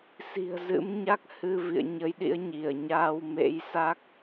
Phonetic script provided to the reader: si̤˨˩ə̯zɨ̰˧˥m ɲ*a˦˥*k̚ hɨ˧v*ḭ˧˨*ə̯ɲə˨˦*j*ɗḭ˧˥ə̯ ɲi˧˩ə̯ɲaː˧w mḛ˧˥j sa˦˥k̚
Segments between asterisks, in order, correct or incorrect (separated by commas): correct, correct, correct